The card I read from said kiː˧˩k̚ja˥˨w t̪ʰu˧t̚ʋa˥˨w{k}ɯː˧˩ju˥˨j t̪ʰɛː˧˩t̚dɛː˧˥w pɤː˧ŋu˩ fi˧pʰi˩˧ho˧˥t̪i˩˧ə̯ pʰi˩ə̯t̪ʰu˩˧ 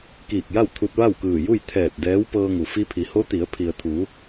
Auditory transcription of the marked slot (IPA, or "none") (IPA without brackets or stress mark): k